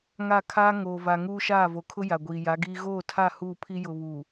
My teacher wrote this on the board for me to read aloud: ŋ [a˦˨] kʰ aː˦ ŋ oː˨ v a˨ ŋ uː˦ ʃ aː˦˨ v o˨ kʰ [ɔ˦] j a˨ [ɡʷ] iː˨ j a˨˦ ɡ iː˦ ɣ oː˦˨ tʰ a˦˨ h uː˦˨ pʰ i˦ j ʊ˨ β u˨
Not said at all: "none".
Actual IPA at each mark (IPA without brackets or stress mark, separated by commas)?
a˦˨, ʊ˦, ɡʷ